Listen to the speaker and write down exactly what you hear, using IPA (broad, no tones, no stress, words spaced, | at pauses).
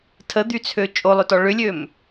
tʰəd̪yt͡sʰø t͡ʃʼolˠʏtɔ ɭʏlʲøm